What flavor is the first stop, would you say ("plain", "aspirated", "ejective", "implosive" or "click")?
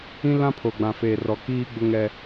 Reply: aspirated